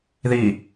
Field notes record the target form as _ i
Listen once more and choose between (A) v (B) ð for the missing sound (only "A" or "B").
B